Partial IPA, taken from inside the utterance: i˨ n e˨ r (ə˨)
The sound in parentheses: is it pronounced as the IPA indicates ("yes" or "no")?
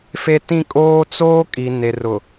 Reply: no